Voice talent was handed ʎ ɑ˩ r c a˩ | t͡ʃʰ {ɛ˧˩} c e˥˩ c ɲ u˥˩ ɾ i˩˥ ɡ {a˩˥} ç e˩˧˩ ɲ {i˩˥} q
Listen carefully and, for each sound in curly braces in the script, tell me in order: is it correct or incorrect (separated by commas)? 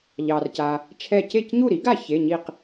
correct, incorrect, incorrect